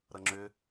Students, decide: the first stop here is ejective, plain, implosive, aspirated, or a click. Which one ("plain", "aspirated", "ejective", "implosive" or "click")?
click